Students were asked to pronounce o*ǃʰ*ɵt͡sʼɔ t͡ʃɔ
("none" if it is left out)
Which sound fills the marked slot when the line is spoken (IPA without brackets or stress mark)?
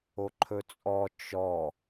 ǃʰ